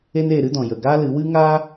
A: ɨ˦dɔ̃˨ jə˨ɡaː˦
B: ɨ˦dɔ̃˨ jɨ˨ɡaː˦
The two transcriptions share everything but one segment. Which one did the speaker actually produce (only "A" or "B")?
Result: A